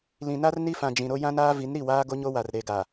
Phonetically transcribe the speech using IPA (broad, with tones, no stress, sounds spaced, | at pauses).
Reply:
l ĩ˨ n a˦ r n i˦ f ã˨ d͡ʒ ĩ˨ ɾ o˦ j ã˦ n aː˦ v i˨˦ n ɾ i˦˨ w aː˦ ɡ o˦ ɲ o˦ w a˨ r ɾ e˨ ɡ a˨